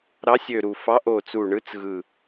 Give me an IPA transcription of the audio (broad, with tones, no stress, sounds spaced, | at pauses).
ɾ ɑ˨˦ sʲ ø˨˩ ɾ u˨˩ f ɑ˨˦ ʔ o˨˩ t͡s u˨˩ ɳ ɯ˨˦ t͡s ɣ ɯ˨˩